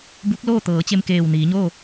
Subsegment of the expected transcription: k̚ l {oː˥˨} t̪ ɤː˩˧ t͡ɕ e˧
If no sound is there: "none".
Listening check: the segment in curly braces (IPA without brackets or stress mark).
oː˥˨